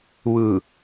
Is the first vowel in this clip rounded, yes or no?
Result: no